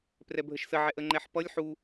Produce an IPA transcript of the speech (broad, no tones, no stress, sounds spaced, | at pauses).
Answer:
p r ɛ bʱ ə ʃ s ə ʕ ɛ ʔ ə ŋ͡ǃ ɛ ħ p ʌ lʲ ħ u